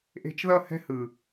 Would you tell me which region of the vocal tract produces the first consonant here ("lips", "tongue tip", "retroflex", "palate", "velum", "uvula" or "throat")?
throat